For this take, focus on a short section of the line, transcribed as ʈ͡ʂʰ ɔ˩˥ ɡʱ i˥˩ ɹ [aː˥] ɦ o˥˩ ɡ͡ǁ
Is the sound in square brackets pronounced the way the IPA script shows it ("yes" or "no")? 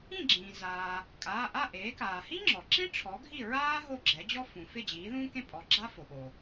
yes